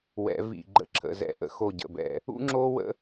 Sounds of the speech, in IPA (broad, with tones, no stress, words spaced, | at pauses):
wɛ̰˨˦vḭ˧˩ ɡ͡ǃə̰˧˩ǁʰə̰˩˧˩zɛ̰˧˩ʔə̰˨˦ xo˧˩ɟə̰˩˧˩bɛ̰˧˩ | ṵ˥ŋ͡ǁo˥ wə̰˥